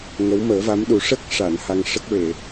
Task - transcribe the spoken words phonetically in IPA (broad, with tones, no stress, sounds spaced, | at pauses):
ŋ ə˧˥ w m əː˨˩˦ v a˧˥ m ɗ u˨˩˦ ʂ ə˦˥ k̚ ʂ a˨˩˨ n h a˧ ŋ ʂ ə˦˥ k̚ ɹ e˨˩˨